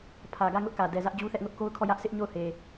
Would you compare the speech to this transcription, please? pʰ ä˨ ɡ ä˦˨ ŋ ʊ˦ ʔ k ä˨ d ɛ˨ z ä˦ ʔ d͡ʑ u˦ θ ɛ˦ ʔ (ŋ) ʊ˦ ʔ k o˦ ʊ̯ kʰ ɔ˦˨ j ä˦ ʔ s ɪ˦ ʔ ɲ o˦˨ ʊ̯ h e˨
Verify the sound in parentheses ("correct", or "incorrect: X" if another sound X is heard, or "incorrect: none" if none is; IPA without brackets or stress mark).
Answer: correct